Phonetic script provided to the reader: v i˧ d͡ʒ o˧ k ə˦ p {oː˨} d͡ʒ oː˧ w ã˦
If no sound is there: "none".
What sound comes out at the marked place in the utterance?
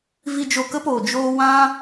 oː˨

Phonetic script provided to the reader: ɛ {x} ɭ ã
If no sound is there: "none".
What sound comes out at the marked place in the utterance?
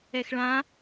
x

